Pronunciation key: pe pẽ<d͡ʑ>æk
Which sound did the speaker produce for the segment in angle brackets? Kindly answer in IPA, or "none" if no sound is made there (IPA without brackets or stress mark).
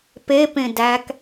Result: d